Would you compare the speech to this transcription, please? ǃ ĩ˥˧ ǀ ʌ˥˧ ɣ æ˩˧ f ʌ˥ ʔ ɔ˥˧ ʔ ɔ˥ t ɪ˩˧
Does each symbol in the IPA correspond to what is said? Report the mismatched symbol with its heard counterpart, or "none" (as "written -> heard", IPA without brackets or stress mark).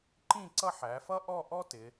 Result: ɣ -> ħ